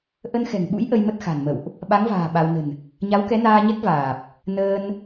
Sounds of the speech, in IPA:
ʔə˧nxɛ̤˨˩ŋɓṵ˧˥j ʔə˧jmə˦˥t̚xa̤˨˩nmə̰˧˨wʔ | ɓa˨˦ŋva̤ː˨˩ ɓa˧w nə̤˨˩n | ɲa˨˦wkɛ˨˦naː˧ɲɛ˦˥k̚ vaː˨˩p̚ | nəː˧n

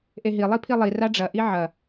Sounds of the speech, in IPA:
ʔeɦi lˠipʰilˠi raɖ͡ʐɐ ʔiʕɐ

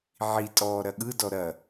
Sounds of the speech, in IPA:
ʕitʼɔː ɾɐɠɯdɔ ɾɐ

